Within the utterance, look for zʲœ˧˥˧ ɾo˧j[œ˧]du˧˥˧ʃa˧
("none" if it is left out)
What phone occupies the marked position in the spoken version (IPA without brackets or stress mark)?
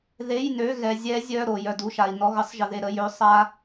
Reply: œ˧